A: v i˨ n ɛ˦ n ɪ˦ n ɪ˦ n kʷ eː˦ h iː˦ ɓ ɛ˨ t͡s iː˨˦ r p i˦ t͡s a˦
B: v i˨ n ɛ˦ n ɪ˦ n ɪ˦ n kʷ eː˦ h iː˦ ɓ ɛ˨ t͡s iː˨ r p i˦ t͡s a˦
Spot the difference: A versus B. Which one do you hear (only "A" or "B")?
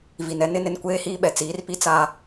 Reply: A